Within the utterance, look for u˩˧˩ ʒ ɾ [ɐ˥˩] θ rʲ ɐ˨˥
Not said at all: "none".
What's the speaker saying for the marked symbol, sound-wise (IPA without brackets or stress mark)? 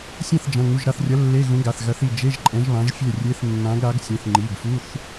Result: a˥˩